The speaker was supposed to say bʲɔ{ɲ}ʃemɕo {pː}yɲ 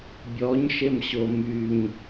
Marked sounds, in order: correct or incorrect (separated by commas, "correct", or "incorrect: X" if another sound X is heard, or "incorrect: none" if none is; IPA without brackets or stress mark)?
correct, incorrect: m